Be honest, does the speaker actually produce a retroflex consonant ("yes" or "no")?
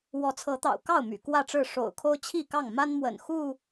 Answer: yes